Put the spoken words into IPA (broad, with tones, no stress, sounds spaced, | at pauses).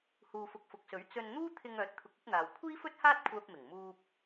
h uː˧ f ʊ˧ k̚ f ʊ˨ k̚ s ɵ˨˥ ɥ t͡s ɵ˧ n n̪ uː˥ t̪ʰ ɪ˧ ŋ œː˨˥ t̚ t̪ʰ ʊ˨˥ k̚ ɵ˨˥ t̚ n̪ aː˨ w kʷʰ iː˥ f ɵ˥ t̚ h aː˥ t̚ kʷʰ œː˧ p̚ m ɪ˨˩ ŋ m uː˥ p̚